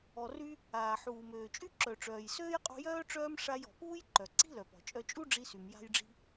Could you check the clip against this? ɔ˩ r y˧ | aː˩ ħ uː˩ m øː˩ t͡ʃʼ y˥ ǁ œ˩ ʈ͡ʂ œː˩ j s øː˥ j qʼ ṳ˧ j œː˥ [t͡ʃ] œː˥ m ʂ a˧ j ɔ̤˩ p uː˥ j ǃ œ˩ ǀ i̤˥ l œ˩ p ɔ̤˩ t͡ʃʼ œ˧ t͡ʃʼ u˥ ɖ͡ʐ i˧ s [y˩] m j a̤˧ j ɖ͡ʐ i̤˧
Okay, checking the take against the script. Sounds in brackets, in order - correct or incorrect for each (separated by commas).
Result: incorrect, correct